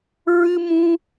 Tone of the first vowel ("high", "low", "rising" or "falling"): high